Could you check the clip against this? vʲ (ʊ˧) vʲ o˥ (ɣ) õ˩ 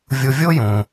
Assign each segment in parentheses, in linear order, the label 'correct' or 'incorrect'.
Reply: correct, incorrect: j

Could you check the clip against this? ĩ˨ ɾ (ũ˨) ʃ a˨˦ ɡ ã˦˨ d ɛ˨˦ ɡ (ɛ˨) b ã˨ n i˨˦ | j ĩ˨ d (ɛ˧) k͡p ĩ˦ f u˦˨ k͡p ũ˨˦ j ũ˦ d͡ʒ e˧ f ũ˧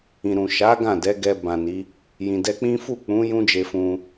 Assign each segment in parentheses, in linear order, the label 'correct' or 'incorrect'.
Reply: correct, incorrect: ɛ˧, correct

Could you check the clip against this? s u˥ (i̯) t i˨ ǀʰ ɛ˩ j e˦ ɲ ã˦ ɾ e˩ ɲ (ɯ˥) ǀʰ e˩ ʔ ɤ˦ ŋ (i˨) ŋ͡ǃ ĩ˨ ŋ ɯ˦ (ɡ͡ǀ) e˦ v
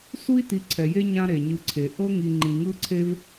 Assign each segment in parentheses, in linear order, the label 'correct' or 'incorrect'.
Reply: correct, incorrect: ɯ˨, correct, incorrect: ǀʰ

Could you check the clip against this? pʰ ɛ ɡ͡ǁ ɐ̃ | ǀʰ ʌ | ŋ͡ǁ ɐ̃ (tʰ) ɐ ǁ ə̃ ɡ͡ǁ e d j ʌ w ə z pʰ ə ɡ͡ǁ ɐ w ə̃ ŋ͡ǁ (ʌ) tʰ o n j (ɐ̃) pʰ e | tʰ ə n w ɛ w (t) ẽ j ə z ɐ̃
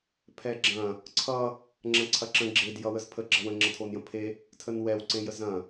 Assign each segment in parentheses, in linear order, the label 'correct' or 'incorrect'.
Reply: incorrect: ǀʰ, correct, incorrect: ə̃, incorrect: ǀ

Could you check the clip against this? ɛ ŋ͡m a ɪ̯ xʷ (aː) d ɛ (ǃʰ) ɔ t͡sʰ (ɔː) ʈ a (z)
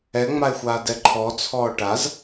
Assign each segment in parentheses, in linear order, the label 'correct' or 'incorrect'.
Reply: correct, correct, correct, correct

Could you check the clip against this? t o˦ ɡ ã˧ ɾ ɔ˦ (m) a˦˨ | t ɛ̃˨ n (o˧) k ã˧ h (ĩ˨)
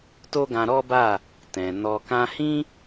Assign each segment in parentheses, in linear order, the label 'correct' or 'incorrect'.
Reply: incorrect: b, incorrect: ɔ˧, incorrect: ĩ˦

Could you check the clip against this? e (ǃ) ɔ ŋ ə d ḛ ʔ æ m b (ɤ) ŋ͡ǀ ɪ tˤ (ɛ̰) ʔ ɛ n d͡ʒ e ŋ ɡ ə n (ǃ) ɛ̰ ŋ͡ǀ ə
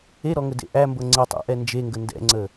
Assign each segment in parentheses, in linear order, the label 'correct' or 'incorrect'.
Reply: incorrect: ɾ, correct, incorrect: æ̰, incorrect: d

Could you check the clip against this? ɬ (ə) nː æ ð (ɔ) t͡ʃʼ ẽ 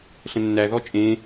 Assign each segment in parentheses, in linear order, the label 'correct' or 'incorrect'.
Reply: incorrect: ə̃, correct

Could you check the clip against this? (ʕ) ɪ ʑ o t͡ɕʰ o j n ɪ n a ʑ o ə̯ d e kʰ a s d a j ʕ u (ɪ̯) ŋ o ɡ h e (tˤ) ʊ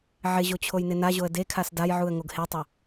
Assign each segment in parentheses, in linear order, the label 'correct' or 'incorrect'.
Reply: correct, incorrect: ə̯, correct

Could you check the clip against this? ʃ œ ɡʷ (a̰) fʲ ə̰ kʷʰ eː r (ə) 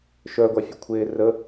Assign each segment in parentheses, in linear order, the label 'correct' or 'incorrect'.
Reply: incorrect: a, correct

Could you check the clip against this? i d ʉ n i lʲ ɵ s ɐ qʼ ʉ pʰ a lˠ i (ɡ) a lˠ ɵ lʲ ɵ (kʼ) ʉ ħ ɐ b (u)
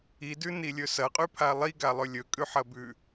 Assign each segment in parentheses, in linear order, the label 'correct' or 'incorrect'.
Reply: correct, correct, incorrect: ʉ

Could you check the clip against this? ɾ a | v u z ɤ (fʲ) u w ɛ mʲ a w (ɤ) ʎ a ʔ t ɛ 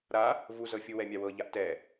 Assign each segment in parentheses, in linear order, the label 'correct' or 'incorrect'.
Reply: correct, correct

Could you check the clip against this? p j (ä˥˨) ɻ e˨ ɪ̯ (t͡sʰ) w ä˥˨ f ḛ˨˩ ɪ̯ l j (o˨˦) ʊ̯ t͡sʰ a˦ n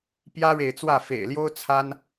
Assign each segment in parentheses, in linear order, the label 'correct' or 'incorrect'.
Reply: incorrect: ä˦, incorrect: t͡s, incorrect: o˦

